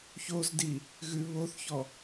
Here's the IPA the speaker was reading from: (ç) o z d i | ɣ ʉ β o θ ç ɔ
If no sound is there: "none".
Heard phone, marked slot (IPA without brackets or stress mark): ç